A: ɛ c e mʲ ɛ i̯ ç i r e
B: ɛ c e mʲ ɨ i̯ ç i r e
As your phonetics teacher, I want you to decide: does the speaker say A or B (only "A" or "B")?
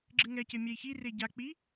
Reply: A